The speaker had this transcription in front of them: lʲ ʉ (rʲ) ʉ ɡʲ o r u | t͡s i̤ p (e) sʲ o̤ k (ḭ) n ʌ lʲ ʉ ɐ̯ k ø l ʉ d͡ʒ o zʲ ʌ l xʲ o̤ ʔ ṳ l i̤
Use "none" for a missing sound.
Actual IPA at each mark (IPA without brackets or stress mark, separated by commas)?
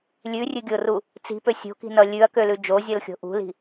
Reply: rʲ, ø, i̤